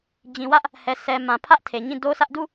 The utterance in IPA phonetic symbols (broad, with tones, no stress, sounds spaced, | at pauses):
d͡ʑ ĩ˨ w ä˦ ʔ | h ɛ˨ s ɛ˨ m ã˨ pʰ ä˦ ʔ tʰ e˨ ɲ ĩ˦˨ d o˦ s ä˦ ʔ d u˦˨